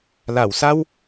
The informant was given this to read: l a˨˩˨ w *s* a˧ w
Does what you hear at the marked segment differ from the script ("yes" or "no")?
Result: no